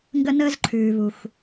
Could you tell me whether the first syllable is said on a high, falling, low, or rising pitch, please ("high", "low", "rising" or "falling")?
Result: high